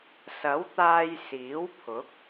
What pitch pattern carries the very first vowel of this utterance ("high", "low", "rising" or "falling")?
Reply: rising